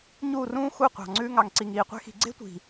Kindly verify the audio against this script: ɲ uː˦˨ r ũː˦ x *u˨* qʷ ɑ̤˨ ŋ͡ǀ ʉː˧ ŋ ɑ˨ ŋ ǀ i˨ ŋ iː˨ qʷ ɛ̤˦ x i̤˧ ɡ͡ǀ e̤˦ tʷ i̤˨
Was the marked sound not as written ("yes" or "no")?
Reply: yes